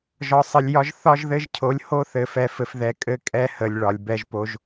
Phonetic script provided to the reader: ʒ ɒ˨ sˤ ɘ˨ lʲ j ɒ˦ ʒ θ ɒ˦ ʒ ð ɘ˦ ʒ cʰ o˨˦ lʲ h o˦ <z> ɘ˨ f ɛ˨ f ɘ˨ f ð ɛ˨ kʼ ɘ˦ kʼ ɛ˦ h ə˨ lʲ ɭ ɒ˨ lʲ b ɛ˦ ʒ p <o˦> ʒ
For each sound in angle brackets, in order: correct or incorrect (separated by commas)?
incorrect, correct